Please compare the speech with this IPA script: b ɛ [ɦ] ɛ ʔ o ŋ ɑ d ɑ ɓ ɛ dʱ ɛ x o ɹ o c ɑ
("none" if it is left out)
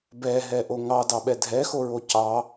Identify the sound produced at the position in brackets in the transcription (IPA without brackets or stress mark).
ɦ